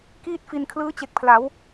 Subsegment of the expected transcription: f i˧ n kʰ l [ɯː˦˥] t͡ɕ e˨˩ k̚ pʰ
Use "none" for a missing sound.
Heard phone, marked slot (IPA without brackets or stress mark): ɯː˦˥